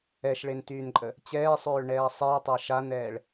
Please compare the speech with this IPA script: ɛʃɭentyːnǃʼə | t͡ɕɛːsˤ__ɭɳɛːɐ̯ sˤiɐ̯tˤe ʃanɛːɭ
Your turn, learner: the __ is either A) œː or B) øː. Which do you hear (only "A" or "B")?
B